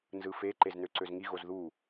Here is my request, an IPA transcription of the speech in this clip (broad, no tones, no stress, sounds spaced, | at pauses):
n z ɯ f e ǃ e z n ø ǀ ø z ŋ i ɣ o z ð u